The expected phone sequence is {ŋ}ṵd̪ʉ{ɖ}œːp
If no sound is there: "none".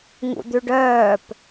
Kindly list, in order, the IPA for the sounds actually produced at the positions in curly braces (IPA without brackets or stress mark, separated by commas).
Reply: ŋ, ɖ